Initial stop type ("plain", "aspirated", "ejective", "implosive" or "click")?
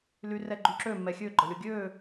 click